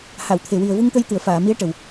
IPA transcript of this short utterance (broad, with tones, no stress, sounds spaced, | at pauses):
h a˨˩˨ w t̪ʰ e˨˩ w i˨˩ ə̯ v u˧ ŋ t̪ ə˧ j t̪ ɨ˨˩˨ ə̯ f aː˨˩˨ m i˧˥ ə̯ ʈ ə˨˩ w